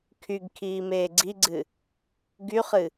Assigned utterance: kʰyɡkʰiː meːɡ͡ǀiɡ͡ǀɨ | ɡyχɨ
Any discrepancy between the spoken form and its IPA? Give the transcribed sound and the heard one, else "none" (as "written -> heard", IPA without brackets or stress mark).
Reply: none